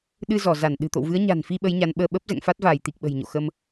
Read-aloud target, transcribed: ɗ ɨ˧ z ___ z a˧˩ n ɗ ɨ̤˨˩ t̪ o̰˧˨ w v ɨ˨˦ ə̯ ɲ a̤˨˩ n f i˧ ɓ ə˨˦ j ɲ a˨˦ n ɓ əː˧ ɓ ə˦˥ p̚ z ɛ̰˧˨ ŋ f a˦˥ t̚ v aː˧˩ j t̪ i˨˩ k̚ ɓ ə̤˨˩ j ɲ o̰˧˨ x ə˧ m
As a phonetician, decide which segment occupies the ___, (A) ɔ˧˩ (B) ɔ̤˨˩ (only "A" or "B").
A